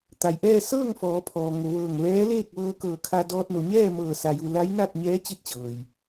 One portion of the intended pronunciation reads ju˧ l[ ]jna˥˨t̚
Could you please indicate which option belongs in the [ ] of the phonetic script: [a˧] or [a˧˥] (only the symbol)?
a˧˥